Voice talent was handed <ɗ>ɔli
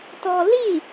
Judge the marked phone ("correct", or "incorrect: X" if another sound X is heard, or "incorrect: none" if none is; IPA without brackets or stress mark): incorrect: t